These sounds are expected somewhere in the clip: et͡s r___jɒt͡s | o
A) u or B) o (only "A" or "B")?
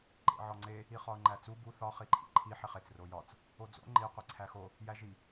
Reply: B